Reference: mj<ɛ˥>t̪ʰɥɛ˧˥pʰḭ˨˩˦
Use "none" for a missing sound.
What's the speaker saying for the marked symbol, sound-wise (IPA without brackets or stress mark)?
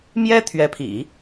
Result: ɛ˥